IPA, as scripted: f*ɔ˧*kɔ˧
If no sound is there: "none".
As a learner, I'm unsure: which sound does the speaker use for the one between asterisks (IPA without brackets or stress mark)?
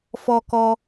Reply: ɔ˧